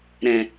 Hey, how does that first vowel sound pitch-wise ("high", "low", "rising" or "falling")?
low